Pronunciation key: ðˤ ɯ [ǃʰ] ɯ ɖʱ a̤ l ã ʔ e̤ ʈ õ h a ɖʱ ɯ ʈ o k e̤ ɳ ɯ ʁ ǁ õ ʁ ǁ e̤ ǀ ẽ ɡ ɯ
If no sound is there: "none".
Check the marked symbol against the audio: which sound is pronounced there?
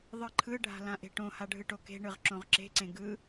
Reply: ǃʰ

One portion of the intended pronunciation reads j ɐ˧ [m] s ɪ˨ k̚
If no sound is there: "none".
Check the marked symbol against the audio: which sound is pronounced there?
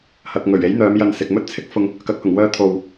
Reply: n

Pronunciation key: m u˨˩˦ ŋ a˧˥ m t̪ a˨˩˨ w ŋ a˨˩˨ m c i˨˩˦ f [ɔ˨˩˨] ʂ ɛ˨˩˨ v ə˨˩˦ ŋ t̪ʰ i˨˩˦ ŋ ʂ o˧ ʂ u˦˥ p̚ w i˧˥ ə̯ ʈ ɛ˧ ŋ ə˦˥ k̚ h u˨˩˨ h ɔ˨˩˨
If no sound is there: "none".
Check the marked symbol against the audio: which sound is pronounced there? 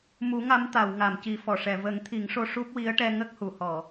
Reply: ɔ˨˩˨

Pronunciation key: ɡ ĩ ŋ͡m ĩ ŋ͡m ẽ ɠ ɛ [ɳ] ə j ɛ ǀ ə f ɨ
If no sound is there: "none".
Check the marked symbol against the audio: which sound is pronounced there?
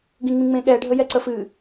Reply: ɖʱ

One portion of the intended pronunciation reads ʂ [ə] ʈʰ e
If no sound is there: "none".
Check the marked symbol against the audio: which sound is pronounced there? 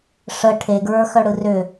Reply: ə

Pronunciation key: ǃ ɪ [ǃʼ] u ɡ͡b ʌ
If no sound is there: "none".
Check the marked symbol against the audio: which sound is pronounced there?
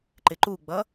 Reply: ǃ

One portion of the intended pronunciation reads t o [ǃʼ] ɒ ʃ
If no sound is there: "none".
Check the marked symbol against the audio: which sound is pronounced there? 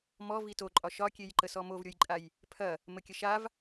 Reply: ǃʼ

